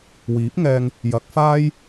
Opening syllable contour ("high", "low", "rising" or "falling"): rising